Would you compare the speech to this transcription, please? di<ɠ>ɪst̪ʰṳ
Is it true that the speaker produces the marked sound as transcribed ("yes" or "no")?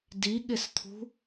yes